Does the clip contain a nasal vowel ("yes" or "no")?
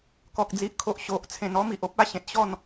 yes